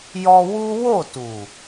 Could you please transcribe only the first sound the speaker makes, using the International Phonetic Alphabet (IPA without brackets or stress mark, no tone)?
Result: j